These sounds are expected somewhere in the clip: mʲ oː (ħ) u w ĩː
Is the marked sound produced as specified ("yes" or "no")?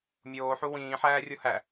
yes